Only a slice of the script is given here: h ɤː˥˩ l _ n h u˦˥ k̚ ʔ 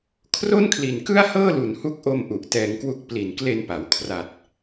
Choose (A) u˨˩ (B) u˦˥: A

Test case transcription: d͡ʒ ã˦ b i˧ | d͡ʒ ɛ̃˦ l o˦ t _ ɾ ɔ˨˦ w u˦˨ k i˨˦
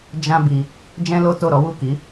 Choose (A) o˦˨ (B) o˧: A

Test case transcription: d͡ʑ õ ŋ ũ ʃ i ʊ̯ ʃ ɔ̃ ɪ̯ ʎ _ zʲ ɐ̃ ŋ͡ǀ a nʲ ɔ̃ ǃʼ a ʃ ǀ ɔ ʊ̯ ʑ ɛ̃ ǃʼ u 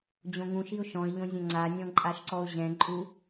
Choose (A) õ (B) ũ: A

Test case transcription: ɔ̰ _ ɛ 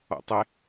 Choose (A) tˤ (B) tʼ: A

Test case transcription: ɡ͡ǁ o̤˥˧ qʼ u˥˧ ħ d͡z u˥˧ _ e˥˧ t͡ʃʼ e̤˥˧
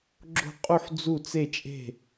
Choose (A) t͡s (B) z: A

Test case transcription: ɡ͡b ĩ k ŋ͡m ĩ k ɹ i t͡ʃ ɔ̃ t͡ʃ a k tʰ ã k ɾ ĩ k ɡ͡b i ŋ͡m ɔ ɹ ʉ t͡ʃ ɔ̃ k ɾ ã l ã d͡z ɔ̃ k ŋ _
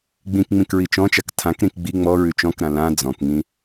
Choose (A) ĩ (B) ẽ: A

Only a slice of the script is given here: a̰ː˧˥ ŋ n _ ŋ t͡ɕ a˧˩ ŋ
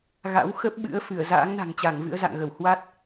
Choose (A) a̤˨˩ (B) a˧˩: A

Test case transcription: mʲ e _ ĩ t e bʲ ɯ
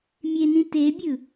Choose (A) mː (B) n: B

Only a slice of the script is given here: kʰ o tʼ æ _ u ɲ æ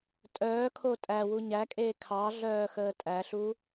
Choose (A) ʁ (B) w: B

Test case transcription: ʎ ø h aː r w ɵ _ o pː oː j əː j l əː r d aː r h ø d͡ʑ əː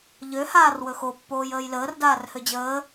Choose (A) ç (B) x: B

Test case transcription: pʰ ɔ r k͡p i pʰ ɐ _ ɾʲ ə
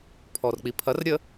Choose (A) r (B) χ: A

